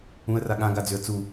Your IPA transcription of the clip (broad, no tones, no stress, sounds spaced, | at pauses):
ũ ə̯ r a ɠ ã ɡ a d͡z ʏ ə̯ t͡s u